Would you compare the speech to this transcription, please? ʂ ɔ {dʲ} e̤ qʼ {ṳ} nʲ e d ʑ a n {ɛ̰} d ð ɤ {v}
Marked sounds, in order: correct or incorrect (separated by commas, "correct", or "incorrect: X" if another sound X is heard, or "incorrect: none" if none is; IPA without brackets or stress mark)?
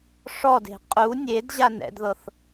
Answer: incorrect: d, incorrect: u, correct, incorrect: θ